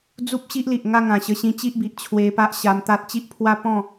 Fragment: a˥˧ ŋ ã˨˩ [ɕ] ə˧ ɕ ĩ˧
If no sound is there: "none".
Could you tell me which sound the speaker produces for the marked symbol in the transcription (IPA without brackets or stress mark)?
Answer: ɕ